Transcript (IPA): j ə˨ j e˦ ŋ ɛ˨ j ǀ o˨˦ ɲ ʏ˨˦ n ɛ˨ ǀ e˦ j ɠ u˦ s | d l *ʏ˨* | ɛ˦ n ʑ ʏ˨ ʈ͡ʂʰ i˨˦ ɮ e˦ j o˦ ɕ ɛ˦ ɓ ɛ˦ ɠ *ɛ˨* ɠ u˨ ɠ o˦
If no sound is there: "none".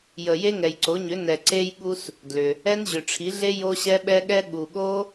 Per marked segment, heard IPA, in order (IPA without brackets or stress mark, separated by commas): ʏ˨, ɛ˦